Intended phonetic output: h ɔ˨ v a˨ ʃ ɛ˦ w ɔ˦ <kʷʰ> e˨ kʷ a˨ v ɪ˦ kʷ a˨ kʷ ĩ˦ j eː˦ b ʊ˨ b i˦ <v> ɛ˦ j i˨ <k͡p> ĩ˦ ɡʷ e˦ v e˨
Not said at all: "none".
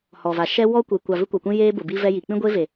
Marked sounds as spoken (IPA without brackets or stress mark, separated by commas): kʷ, v, k͡p